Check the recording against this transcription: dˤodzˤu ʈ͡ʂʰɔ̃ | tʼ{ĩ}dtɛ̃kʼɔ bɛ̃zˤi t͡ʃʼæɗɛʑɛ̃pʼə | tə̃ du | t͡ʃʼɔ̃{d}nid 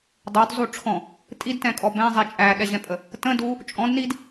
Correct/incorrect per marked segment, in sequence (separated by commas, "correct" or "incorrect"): incorrect, correct